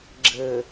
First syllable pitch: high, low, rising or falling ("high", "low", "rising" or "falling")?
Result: low